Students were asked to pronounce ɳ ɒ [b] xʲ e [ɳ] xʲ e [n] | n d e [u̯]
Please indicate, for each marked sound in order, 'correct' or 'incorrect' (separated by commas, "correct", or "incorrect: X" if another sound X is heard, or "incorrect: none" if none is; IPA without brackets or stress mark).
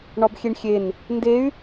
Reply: correct, correct, correct, incorrect: y̯